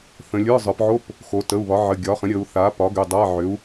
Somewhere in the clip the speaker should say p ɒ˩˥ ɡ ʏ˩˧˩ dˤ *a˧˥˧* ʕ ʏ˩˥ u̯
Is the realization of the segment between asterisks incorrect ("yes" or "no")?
no